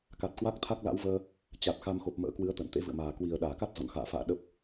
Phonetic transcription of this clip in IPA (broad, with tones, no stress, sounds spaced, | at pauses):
k a˨˩ t̚ k w a˦˥ k̚ t̪ʰ a˦˥ k̚ l a̰˧˥ w v əː˧ | t͡ɕ a˨˩ t̚ x a˧ m x o˨˩ p̚ m ə̰ː˧˥ k w ɨ˨˦ ə̯ t̪ ə̰ː˧˨ n t̪ ḛ˧˥ v ɨ̰˧˨ ə̯ m aː˨˩ k w i˨˩ ə̯ ɗ aː˧˩ k a˦˥ t̚ z ɔ̰˧˨ n x a̰ː˧˨ f a̰ː˧˨ ɗ ə˦˥ p̚